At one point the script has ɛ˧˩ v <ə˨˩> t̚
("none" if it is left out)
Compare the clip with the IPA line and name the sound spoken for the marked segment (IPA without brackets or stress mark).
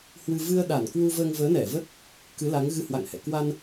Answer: ə˦˥